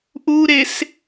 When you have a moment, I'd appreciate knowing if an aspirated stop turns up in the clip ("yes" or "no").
no